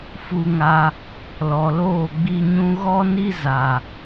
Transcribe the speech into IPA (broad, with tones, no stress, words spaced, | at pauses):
fu˧ŋa˧ | lɔ˨loː˦˨ɡ͡bi˧ɲũ˦ ɣɔ˦ni˦ za˨